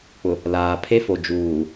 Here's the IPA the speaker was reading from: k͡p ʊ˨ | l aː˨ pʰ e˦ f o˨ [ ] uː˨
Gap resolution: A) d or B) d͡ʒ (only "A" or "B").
B